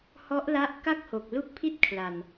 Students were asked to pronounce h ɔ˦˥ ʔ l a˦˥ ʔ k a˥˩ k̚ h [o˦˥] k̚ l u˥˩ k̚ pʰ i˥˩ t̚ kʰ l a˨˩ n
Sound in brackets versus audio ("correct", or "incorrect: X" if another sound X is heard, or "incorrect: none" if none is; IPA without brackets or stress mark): incorrect: o˨˩